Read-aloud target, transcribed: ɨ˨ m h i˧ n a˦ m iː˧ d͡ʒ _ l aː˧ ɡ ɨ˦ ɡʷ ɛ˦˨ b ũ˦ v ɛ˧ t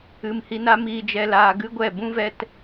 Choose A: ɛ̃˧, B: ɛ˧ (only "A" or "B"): B